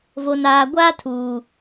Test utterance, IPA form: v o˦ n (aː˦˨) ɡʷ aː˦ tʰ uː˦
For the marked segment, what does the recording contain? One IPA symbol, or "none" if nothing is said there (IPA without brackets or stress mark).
aː˦